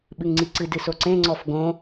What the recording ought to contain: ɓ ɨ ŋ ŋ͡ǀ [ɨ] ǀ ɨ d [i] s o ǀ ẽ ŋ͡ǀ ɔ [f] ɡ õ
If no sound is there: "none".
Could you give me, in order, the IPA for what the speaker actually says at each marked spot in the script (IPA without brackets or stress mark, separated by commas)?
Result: i, ɨ, f